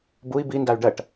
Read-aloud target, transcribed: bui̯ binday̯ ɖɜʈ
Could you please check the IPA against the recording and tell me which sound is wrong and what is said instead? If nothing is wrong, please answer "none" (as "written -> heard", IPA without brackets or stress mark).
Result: none